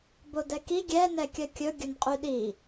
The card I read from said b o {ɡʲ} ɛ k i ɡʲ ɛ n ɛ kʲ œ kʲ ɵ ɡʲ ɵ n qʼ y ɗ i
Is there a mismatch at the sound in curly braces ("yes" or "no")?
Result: yes